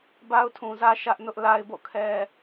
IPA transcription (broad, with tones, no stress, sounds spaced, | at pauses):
b a˦ ʊ̯ tʰ ũ˨ z ä˦ ʃ ä˦ ʔ n ʊ˦ ʔ l a˦ ɪ̯ b o̰˦˨ kʰ ɛ˦